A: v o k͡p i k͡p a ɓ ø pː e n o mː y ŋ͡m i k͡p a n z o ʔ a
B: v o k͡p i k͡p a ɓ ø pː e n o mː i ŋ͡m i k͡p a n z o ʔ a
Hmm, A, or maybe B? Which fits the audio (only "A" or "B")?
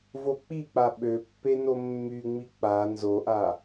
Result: A